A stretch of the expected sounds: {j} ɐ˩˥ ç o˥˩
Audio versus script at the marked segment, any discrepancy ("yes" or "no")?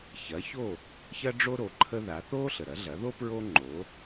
yes